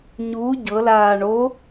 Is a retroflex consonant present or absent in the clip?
present